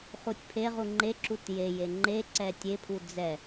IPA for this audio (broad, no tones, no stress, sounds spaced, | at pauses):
χ u tʲ pʰ e ʁ u ŋ͡ǃ e ǁ u t j e j e ŋ͡ǃ e ǀ ɛ tʲ e pʰ u d͡z ɛ